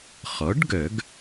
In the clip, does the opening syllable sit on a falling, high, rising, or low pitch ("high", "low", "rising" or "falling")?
rising